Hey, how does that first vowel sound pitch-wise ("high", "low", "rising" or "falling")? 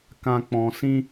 low